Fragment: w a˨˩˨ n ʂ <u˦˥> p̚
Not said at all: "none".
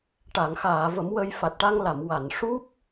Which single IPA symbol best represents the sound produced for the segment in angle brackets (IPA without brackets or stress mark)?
u˦˥